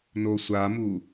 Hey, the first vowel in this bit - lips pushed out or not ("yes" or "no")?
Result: yes